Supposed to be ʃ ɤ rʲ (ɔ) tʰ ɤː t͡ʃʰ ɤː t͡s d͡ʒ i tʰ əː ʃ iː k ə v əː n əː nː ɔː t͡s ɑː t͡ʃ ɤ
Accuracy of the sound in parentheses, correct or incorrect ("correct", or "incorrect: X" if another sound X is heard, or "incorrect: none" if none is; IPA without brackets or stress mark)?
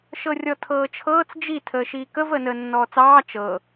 correct